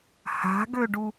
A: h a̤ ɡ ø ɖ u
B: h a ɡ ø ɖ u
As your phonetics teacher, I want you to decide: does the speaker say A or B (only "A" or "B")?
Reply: A